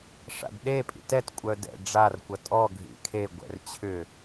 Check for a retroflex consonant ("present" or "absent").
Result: present